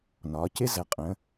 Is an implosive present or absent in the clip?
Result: absent